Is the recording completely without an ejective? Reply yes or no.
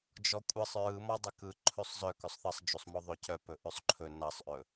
no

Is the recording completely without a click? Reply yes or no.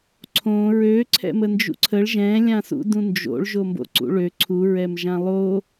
no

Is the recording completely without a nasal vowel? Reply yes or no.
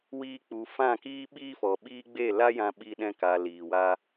no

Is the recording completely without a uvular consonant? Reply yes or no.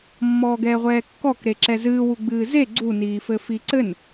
no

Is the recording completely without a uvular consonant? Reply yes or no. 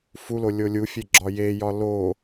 yes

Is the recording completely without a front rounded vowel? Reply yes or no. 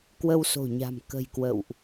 yes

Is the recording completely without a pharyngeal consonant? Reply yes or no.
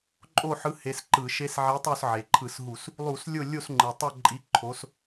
no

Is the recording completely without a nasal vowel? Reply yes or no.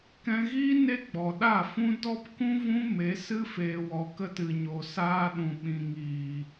no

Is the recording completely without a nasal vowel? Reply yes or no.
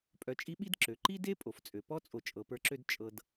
yes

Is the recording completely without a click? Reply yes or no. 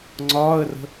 no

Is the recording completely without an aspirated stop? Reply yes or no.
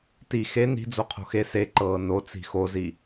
no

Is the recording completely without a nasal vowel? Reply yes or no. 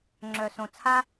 no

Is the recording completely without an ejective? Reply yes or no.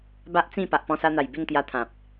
yes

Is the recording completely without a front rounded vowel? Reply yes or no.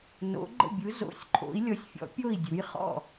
yes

